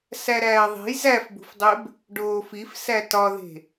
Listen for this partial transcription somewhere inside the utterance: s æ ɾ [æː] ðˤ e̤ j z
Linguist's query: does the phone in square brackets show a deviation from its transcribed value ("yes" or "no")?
no